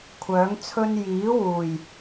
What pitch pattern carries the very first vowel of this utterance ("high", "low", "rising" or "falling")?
rising